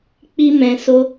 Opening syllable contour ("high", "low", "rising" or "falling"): high